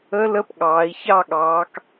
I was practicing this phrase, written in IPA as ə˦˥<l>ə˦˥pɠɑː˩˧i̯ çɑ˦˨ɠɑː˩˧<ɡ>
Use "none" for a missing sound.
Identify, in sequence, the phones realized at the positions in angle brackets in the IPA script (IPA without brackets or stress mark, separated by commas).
l, k